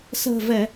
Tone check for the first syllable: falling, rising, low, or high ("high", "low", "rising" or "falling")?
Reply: low